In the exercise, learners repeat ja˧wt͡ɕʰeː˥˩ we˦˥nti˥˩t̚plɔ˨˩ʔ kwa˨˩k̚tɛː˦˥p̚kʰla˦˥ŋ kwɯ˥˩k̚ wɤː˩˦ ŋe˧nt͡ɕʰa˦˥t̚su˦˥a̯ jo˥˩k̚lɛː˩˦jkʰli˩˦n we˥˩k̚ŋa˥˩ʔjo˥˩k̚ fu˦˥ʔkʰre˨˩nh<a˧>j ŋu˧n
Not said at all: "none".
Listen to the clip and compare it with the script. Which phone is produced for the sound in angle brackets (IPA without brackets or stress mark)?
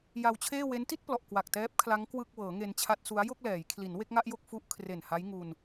a˦˥